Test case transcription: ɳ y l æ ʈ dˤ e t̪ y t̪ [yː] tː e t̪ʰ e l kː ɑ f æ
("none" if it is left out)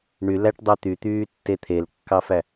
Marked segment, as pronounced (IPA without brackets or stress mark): yː